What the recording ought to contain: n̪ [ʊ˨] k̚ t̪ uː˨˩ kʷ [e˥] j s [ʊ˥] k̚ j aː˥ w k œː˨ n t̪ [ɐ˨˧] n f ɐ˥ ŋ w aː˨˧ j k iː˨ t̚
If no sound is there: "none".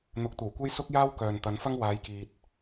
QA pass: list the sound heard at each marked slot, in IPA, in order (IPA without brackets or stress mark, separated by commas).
ʊ˨, e˥, ʊ˥, ɐ˨˧